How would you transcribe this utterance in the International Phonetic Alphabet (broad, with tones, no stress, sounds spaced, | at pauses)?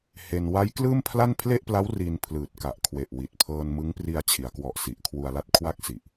h e˧ n w a˦˥ j k l ɯː˥˩ m pʰ l a˥˩ n pʰ l e˥˩ ʔ p l a˦˥ w r i˧ n pʰ l ɯː˨˩ t̚ k a˨˩ ʔ kʰ w e˨˩ ʔ w i˨˩ t̚ pʰ ɤː˧ n m ɯ˦˥ ŋ p r i˧ a̯ t͡ɕʰ i˩˦ a̯ k w ɔ˨˩ ʔ s i˨˩ ʔ kʰ w u˧ a̯ l a˥˩ t̚ kʰ w a˥˩ k̚ s i˨˩ ʔ